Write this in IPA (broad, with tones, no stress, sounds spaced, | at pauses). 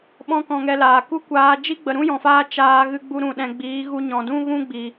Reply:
ɓ ɔ̃˦ k ɔ̃˧ ŋ ɛ˧ l aː˨ k u˦ kʷ aː˧ d͡ʒ i˦ ɡ͡b ə˨ ɾ ũ˦ j ɔ̃˨ f aː˧ t͡ʃ aː˧ ɣ ɨ˧ ɡ͡b u˧ ɾ ũ˨ ɗ ɛ̃˨ ɡ͡b iː˨˦ ɣ u˧ ɲ ɔ̃˨ d ũ˦ ɣ ũ˦ ɡ͡b i˨